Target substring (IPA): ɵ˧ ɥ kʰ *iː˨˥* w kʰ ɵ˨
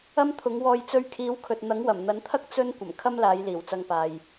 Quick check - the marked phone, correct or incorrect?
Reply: correct